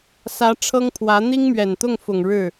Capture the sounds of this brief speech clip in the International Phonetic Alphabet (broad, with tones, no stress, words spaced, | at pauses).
sä˧˥ʈ͡ʂʰɤ˥ŋpʰwä˧˥ n̪i˥ŋmɥɛ˨˩nt̪ʊ˥˩ŋfʊ˨˩ŋ ɻɻ̩˥˩